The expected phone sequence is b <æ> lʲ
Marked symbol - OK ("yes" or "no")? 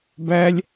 yes